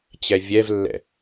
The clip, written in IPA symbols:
t͡ɕɛvʲɛvlːɛ̰

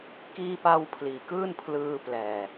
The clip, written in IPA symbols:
kiː˧pa˧w pʰliː˨˩kɯː˥˩npʰlɯː˧ plɛː˨˩

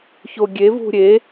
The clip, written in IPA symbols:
çoɡʲe vṳɾʲe

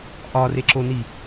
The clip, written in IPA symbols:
ʔɒreǁoni

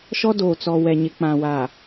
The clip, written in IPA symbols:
ʃɔ˦doː˨t͡sɔ˨ wɛ˨ɲɪ˨ k͡pã˨wa˨

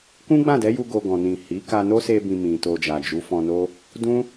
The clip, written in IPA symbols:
kũ˦ɡ͡bã˦˨dɛ˨˦ju˧ ɡo˧ɡɔ̃˨nĩ˨ hi˨˦ ka˧ no˦se˧bĩ˨ mĩ˨to˧d͡ʒa˨ d͡ʒu˨˦fɔ̃˧no˦ | dũ˦

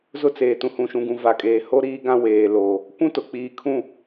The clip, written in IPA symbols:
zʊ˦t͡seː˨ tũ˨hũ˨ʃũ˨ɡũ˨ va˨kʼeː˨ho˦ ɾiː˦ɡã˦ weː˨ lo˨ | kʷũ˦tʊ˨k͡piː˨kʰũ˦˨

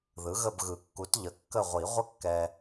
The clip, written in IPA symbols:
ðɯ˩˥ɣə˦˨bɣɯ˨˩˦kːu˩˥t ʎə˩˥kːə˦˨ʁʷi˨˩˦ ʁʷə˦kːɛ˨

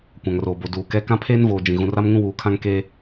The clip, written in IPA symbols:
kʷã˨ŋroː˨bo˨ duː˨kɛ˦ kã˦pʰeː˦nvoː˨ d͡ʒĩ˨ ɣũ˨ra˦m ŋũ˦wuː˨kʰã˦ŋ keː˦

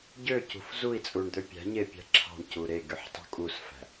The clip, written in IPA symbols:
ɟøcṳf zui̯t͡sʼuɳd̪ø pʲæ̤ɲepʲæ̤ ǁʰɑ̤ɳcu ɾeɡyħtˤṳ kʼusfæ̤

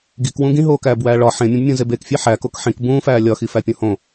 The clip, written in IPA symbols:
ɡikwũ ɡĩɦoːkæːbwæː ɭɒ ħẽmʲũbmʲũzeb ekfʲe ħækok ħĩk bũːfæː lʲɒxifæpʲõ hõ

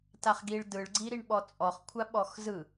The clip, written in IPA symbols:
taχɡiɭ dɯɭ ɡ͡ǀiɾiɳɓɔt͡sʼɔχ kʷʰaɓɔxzɯ

